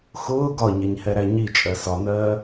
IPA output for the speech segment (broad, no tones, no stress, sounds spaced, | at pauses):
x ʊː ɡ ɒ ɲ ɛ ɲ h ɛ ɾ æ ɲ i t͡ʃʼ ɜ s ɒ n ɜː